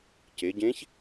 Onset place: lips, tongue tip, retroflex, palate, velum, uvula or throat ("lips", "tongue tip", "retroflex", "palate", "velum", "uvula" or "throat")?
palate